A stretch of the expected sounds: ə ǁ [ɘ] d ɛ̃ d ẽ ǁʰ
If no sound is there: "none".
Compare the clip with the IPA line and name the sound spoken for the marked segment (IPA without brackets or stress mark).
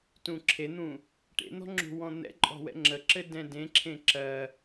ɘ